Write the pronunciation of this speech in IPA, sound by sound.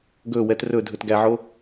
ɡ ɵ w ɛ t r ɵ dʱ ɵ t ɡ æ ʕ o

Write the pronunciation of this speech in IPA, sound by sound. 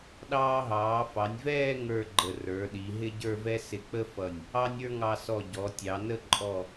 ɗ ɑː˧ ɦ ɑː˩˧ f ɑ˩˧ nʲ v ɛː˥˧ ŋ ə˞˥˧ ɡ͡ǃ ə˧˩ r ə˞˩˧ ɗ i˩˧ ɦ ɪ˥ ɟ ə˞˥˧ v ɛ˥ s ɪ˧ k͡p ə˥ f ʌ˧˩ nʲ | ɑ˥ nʲ ə˞˥ ŋ ɑ˧ s ɔ˧˩ ɟ ɔ˩˧ tʲ ɑ˩˧ n ə˥˧ ǃʼ ɔ˧˩

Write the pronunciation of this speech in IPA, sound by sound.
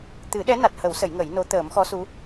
t̪ ɨ˨˩˦ ɗ ɛ˧˥ n a˨˩ t̚ h ə˨˩˦ w s ə˨˩˦ j ŋ ə˨˩˦ j n o˧˥ t̪ əː˨˩˦ m x ɔ˧˥ s u˧˥

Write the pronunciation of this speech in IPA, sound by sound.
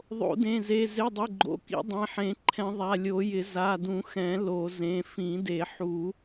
ðˤ o̰˨˩˦ d ẽ˩˧˩ z e˩˧˩ z ɪ˩˧˩ dˤ ɪ˩˧˩ ɡ͡ǃ o̰˩˧˩ k ḭ˨˩˦ dˤ ẽ˩˧˩ ħ ẽ˨˩˦ ǃʰ ɛ̃˨˩˦ ðˤ a˩˧˩ lʲ o˨˩˦ j ɪ˨˩˦ z a˩˧˩ d ũ˨˩˦ x ɛ̃˨˩˦ l o˨˩˦ z ẽ˩˧˩ f ĩ˨˩˦ d e˨˩˦ ħ u˨˩˦

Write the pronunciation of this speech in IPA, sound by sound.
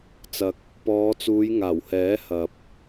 t͡s ɐ˧ k̚ | p ɔː˨˧ t͡s uː˨˧ j ŋ aː˨˩ w h ɛː˨˥ h ɐ˨ p̚

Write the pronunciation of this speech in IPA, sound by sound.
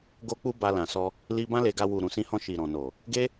ɡ o˦ k͡p u˦ b a˧ l ã˨ s ɔ˧ | l i˧ b ã˦ l e˧ ɡ a˧ w u˨ ɾ ũ˨ s ĩ˧ h ɔ̃˧ ʃ i˨ ɾ ɔ̃˨ n o˨ | ɡ e˦

